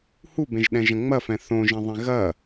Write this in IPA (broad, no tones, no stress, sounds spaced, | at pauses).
h u b ẽ ʒ ɗ ɛ̃ ʒ ɐ̃ ŋ͡m ɐ f ɛ̃ θ õ ʒ ẽ ðˤ ẽ ɣ ɐ